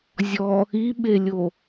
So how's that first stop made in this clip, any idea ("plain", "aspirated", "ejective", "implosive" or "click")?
implosive